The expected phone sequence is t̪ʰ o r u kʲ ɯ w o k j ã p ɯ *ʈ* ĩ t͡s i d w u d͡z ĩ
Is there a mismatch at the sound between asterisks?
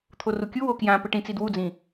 no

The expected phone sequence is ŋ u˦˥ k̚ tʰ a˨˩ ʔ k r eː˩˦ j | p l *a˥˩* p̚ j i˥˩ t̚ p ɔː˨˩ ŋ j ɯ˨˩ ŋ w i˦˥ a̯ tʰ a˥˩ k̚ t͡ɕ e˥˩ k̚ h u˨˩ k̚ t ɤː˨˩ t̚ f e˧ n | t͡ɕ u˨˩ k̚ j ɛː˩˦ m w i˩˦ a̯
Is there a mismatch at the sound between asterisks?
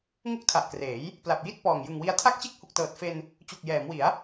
yes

